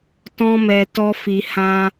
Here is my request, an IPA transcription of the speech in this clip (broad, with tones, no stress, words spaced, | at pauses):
tɔ̃˦mɛ˧ tɔ˦fi˧ hã˦